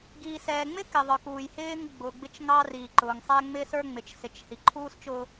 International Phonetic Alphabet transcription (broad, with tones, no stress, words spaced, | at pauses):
ɡiː˨sɛː˨ŋ͡mɪ˦ kɪ˨ðˤə˞˨kuː˨j hɪː˦ŋɡ͡bʊː˨ɡ͡bɪ˦t͡ʃ ŋɑ˦riː˨ǃʊː˨ŋ sˤɛ˦ŋ͡mɪ˦sə˞˦ ŋ͡mɪ˨t͡ʃsɪ˨t͡ʃ hi˨ǃʰuː˦st͡ʃʊː˦